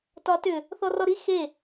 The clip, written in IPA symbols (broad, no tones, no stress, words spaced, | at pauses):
tɒtʏ | θɔrɔɾi xe